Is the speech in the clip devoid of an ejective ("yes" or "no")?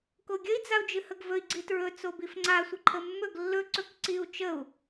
yes